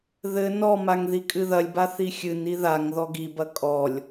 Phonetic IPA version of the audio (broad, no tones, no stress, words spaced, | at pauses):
ðɘ nɔmaŋ ðikʼɨðɐlʲba θixʲɨni ðaŋ ðɔɡibɐ kʼɔlʲ